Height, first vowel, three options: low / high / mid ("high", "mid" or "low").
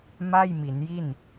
low